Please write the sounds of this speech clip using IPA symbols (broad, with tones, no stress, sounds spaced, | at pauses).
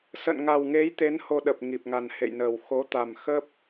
s ə̰˧˨ n ŋ a˨˩ w ŋ e˨˦ j t̪ e˨˦ n h o˧ ɗ ə˨˩ p̚ ŋ i˨˩ p̚ ŋ a˨˩ n h ḛ˧˨ j n əː˨˩ w x o˨˦ t̪ a˨˩ m x ə˦˥ p̚